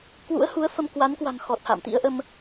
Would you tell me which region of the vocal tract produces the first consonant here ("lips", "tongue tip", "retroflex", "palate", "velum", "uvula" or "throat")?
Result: velum